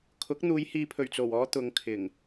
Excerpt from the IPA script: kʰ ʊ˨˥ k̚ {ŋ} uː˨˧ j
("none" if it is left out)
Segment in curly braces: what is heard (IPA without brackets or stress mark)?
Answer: n̪